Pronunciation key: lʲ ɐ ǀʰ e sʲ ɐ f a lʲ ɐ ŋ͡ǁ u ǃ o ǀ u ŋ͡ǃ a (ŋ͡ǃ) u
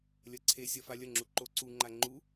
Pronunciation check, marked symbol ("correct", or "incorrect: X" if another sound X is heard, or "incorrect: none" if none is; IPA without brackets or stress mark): correct